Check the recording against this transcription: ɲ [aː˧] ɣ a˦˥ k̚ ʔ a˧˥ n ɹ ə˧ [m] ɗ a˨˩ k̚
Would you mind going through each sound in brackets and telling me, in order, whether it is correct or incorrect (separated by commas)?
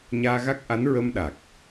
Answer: correct, correct